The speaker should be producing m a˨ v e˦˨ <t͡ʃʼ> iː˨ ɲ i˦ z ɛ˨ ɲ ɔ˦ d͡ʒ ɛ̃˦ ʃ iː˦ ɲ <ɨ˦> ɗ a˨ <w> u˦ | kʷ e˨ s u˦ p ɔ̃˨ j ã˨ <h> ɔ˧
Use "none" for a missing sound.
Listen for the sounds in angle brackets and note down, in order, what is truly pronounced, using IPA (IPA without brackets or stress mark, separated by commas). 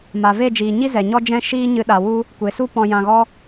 d͡ʒ, ɨ˧, w, ɣ